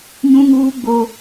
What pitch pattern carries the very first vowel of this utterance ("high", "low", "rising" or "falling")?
high